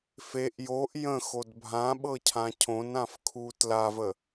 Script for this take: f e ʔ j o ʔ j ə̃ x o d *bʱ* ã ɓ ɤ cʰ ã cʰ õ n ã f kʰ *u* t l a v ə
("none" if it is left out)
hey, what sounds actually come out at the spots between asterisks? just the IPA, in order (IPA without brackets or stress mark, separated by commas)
bʱ, u